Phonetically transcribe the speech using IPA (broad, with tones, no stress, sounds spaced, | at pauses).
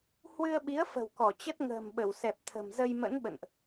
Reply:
h w ɨ˧ ə̯ ɓ i˨˦ ə̯ f ə̤˨˩ w k ɔ˧˩ t͡ɕ ə˦˥ t̚ ŋ ə̤ː˨˩ m ɓ ə˧˩ w s ɛ˨˩ p̚ t̪ʰ ə̤˨˩ m z ə˧ j m ə̰˧˥ n ɓ ə̰˧˨ n ʔ